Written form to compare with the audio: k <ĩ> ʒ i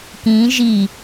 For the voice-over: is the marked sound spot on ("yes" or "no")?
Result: yes